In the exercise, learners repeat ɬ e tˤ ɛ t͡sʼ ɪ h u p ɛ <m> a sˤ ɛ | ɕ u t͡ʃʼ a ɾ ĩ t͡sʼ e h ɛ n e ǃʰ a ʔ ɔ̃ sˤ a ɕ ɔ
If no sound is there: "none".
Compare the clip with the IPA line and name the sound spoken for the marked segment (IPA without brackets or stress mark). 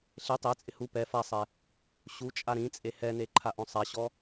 f